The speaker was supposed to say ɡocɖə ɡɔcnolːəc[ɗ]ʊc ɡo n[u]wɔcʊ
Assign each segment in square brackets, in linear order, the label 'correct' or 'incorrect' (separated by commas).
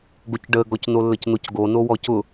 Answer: incorrect, incorrect